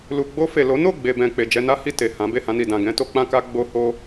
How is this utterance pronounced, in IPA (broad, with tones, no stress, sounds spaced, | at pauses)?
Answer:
l u˨ ɡ͡b o˧ f e˨ l o˨˦ n o˦˨ ɡ͡b e˨ b ɛ̃˨ k͡p e˨ d͡ʒ ɛ˧ n a˦ h i˦˨ t e˨ h ã˨˦ b e˦˨ h ã˧ n i˨ d ã˨ ɡ ɛ̃˧ t o˧ k͡p ã˦ k a˦ ɡ͡b o˧ h o˦